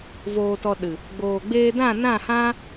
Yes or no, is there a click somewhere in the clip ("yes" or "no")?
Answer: no